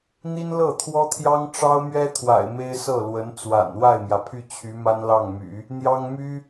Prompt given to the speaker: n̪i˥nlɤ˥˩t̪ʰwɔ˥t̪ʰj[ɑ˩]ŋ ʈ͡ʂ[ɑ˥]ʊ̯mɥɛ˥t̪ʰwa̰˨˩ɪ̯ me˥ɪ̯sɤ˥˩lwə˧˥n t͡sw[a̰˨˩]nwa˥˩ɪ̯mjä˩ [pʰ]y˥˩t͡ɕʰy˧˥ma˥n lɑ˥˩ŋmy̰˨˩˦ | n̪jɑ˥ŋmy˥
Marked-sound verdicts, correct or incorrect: incorrect: ɑ˥, correct, correct, correct

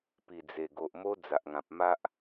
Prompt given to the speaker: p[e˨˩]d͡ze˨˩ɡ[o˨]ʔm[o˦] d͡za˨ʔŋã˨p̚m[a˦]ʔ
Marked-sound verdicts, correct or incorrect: incorrect: i˨˩, correct, correct, correct

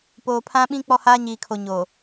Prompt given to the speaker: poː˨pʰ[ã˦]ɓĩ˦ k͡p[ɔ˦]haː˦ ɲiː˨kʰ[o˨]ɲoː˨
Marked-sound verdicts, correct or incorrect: correct, correct, correct

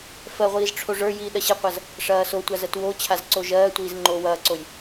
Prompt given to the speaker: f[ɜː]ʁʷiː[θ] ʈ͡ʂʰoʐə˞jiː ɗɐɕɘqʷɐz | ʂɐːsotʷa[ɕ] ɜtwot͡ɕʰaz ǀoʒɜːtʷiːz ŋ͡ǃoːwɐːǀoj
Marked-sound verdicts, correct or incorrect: incorrect: ɜ, incorrect: z, incorrect: z

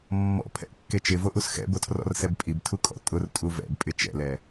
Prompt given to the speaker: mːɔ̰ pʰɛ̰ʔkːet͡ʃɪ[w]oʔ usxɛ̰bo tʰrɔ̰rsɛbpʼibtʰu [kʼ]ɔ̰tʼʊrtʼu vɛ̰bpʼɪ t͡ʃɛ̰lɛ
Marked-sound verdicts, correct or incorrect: incorrect: v, correct

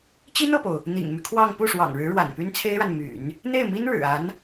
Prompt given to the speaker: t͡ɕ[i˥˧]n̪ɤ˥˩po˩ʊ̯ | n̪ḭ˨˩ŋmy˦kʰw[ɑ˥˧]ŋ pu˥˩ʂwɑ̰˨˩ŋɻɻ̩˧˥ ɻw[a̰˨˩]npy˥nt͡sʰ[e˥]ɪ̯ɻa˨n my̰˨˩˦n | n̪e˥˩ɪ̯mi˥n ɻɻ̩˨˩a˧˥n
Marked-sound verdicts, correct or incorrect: incorrect: i˥, correct, correct, correct

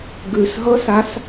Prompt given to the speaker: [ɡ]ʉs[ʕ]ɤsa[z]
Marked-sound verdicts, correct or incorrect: correct, incorrect: ɦ, incorrect: s

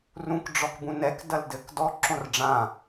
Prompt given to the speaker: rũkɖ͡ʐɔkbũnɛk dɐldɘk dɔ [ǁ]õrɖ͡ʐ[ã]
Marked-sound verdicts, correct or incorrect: correct, correct

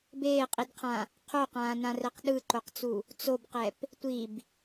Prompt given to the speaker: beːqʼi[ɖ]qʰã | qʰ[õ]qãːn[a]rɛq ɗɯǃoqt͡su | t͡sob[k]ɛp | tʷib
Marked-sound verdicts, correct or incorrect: incorrect: d, incorrect: o, incorrect: ã, incorrect: q

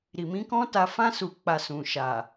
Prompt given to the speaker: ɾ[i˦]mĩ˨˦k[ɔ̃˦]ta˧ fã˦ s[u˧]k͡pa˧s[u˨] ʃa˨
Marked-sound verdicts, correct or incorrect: incorrect: i˨, correct, correct, incorrect: ũ˨

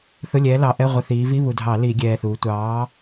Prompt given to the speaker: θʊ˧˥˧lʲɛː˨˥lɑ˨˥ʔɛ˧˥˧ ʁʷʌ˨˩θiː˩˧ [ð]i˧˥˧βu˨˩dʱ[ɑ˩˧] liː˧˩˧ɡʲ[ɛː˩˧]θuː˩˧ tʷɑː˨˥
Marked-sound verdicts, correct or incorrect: incorrect: v, incorrect: ɑ˧˩˧, incorrect: ɛː˨˩

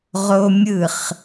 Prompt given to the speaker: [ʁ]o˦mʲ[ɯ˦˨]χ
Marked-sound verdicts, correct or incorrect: correct, correct

